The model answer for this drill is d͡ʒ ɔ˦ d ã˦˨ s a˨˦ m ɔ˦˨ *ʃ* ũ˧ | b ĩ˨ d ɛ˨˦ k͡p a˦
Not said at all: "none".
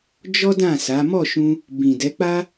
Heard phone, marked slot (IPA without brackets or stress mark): ʃ